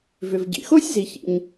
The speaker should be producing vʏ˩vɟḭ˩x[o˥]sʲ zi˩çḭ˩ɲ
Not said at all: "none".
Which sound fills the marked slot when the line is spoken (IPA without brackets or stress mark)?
o˥